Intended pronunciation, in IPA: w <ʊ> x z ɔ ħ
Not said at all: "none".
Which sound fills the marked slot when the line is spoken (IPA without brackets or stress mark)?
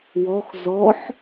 ɔ